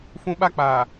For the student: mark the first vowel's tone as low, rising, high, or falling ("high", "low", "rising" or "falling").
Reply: high